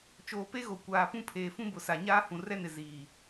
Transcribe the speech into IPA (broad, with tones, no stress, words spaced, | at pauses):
t͡ʃoː˨pe˦ɣo˨ kʷaː˨pũ˦ pʰeː˨fũ˦bʊ˨sa˨ ɲaː˦ hũ˨rɛ˦nɪ˨ ziː˨